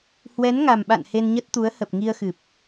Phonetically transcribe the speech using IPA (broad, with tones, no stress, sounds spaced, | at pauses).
h w ɛ˨˦ n ŋ a˨˩ m ɓ a̰˧˨ n h e˧ n ɲ ə˦˥ t̚ t̪ u˨˦ ə̯ h ə˨˩ p̚ ŋ i˧ ə̯ x ɨ˨˩ p̚